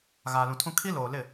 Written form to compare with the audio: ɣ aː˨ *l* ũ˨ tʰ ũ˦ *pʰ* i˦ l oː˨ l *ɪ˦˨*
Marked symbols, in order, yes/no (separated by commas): yes, no, yes